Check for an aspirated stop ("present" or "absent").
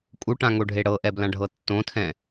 present